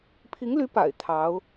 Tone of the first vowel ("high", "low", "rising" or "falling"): rising